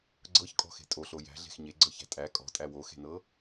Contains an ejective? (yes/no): yes